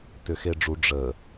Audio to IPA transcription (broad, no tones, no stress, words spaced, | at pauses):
tʏxeɖ͡ʐu ɖ͡ʐə